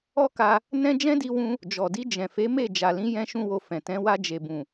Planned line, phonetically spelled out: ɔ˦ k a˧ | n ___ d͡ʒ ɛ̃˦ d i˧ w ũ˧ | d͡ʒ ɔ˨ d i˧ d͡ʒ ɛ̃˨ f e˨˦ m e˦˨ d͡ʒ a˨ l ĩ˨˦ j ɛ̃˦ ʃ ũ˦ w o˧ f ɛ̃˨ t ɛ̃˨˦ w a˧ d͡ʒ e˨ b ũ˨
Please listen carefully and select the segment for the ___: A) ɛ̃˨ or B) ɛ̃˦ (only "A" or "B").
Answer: B